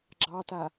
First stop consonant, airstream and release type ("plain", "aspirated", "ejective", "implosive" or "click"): click